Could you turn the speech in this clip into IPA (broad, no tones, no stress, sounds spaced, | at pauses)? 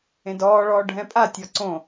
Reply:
ẽ d ɔː ɭ ɔː ɖʱ ɛ̃ pʼ a tʲ ɔ ǀ õ